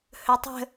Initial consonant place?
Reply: glottal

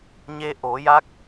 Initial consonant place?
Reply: palatal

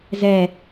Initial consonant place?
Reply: alveolar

